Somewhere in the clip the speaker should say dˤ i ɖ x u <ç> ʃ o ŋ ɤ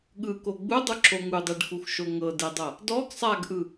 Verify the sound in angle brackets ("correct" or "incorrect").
incorrect